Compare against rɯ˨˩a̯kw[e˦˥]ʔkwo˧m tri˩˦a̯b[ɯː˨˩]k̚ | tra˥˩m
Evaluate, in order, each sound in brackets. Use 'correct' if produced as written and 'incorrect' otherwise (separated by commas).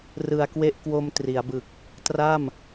correct, incorrect